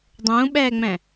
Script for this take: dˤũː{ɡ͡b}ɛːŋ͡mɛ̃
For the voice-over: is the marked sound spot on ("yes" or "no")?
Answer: no